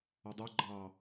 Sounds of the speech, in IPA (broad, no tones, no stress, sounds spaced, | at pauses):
ɒ dˤ o ɡ͡ǃ ɑ